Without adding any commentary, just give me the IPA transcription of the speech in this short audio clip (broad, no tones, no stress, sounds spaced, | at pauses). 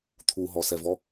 t̪ʰ u ɦ ɔ s ɛ v ɔ